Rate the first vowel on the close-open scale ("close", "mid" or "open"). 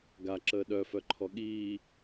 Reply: open